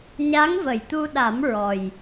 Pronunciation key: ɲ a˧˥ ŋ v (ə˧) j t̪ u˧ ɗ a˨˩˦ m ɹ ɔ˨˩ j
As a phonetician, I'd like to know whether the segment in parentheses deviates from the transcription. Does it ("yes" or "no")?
yes